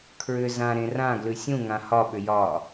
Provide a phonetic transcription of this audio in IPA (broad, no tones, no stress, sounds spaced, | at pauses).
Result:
kʰ ɹ ʏ z ã ɾ ẽ r ã ɡ l ʉ sʲ ũ ŋ ã h ɒ ɓ ʏ j ɒ